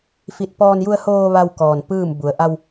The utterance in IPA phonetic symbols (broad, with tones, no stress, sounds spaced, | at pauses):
f i˧˩ t̚ p ɔː˧ n j u˧ ə̯ h oː˧ ʋ a˧ w k ɔː˩ n p ɯː˥˨ m b u˩˧ ə̯ ʔ a˧ w